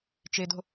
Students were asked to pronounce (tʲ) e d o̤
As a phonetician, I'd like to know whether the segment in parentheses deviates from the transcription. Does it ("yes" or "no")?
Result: yes